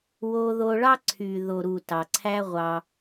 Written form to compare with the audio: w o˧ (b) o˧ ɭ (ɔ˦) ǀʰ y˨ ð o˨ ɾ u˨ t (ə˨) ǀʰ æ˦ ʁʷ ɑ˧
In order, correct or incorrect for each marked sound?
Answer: incorrect: ð, incorrect: ɑ˦, incorrect: ɑ˨

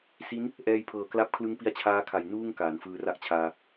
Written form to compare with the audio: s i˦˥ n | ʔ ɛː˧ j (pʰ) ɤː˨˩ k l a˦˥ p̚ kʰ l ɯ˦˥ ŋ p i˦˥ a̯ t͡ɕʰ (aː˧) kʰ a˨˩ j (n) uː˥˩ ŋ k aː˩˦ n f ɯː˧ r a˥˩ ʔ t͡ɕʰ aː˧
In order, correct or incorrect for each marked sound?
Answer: correct, incorrect: aː˦˥, correct

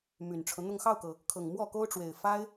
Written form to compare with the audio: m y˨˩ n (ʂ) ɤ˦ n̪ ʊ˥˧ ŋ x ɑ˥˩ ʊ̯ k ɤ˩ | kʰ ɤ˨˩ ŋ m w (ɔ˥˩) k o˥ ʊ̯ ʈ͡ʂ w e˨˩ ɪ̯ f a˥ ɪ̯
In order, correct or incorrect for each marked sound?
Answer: incorrect: ʈ͡ʂʰ, correct

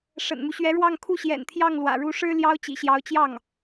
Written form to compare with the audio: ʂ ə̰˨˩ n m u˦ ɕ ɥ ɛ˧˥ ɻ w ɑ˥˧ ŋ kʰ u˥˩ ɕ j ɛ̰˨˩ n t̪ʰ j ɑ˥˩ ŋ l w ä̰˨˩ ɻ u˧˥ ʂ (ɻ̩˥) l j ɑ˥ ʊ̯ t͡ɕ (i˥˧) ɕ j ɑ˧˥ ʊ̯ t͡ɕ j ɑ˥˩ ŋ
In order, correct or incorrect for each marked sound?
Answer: correct, incorrect: ḭ˨˩

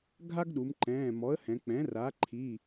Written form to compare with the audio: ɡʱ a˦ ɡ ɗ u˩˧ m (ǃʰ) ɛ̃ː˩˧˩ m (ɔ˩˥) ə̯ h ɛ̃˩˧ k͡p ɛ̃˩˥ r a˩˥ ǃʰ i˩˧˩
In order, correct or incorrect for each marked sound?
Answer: incorrect: ǃ, correct

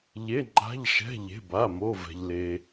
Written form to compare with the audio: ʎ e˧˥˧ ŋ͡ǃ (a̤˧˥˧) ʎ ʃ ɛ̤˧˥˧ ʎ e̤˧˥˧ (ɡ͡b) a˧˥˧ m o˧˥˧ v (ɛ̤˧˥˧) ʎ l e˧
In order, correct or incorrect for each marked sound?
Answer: correct, incorrect: b, incorrect: ɛ̤˧

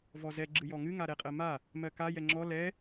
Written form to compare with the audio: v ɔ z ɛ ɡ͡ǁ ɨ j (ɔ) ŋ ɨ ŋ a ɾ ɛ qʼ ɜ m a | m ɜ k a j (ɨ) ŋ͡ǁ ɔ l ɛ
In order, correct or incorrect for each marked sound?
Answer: correct, incorrect: ɛ

